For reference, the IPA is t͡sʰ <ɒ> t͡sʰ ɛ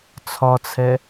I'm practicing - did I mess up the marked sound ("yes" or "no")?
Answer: no